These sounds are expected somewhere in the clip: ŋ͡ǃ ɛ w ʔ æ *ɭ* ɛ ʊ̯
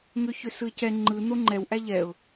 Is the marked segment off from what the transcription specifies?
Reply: yes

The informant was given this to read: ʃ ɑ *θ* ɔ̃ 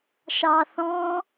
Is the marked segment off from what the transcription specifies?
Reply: no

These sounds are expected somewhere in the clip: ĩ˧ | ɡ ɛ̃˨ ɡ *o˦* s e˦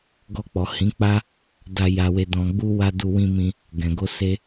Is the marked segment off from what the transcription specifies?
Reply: yes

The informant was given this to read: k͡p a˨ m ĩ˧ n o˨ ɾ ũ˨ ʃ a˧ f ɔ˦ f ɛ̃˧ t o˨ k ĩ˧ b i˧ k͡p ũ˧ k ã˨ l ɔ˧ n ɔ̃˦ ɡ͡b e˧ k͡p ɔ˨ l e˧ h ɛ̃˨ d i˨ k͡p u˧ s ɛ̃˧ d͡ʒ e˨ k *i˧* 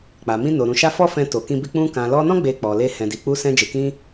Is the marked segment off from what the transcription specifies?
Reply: yes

